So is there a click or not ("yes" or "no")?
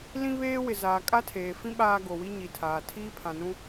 no